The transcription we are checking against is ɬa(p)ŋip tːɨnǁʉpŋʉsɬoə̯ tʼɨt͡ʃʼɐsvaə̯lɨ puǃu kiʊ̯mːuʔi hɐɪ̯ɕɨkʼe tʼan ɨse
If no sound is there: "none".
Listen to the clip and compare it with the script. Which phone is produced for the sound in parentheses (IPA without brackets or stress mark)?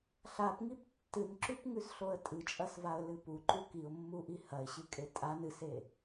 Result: p